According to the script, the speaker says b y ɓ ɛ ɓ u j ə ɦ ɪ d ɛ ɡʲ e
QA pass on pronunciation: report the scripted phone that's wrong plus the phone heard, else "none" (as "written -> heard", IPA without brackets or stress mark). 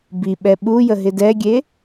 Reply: y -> i